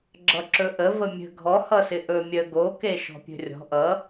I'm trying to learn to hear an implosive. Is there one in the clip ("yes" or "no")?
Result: no